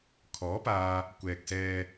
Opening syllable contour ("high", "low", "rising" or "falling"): rising